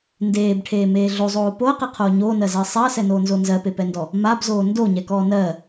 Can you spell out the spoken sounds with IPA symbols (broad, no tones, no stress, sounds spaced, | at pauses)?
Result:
n d eː b ʈʰ eː m eː ɮ o zˤ oː p o ɐ̯ q e qʰ oː ɲ oː n ɜ z ɜ sˤ e ɐ̯ s ɛ n oː n z o n z ɜ p e p ɛ n d ɔ | m a b z oː n d o ɲ ɛ k ɔː n ɜ